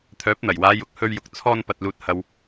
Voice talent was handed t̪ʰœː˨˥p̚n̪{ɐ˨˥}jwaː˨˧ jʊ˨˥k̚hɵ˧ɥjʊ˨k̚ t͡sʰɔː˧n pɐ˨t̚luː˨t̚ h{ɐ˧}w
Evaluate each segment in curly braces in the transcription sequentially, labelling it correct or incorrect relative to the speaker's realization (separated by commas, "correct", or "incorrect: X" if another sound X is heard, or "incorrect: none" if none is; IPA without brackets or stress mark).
incorrect: ɐ˨˩, incorrect: ɐ˨